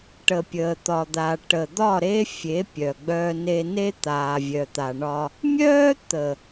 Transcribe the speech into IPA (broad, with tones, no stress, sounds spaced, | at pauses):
ʈ ə˨ pʲ əː˨ t̪ ɒ˨ d̪ a˨ ʈ ə˨ d̪ ɒ˦˨ ɾ e˦ fʲ e˨˦ pʲ œ˨ ɡ͡b œː˦ n e˦ n e˦ t̪ aː˨ vʲ œ˨ t̪ a˨ ɳ ɒ˦ | mʲ œː˦ t̪ ə˨